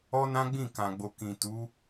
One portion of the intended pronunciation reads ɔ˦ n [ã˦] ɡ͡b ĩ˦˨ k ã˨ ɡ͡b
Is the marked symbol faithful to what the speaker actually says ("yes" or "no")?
yes